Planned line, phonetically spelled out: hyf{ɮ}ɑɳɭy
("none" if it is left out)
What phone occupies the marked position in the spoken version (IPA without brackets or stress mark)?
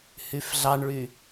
ɮ